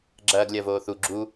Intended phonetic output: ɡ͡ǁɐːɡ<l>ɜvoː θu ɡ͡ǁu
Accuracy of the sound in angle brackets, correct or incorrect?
incorrect